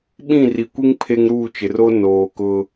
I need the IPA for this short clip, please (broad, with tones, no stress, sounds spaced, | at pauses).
ɓ ĩ˦˨ r i˨ kʷ i˦ ŋ pʰ e˦ ŋ ɾ uː˦˨ t͡ʃ ɪ˨ r o˦ n oː˨ k ʊ˦